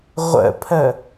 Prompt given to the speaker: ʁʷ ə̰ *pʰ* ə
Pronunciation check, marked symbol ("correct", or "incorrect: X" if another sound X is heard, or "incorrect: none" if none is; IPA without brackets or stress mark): correct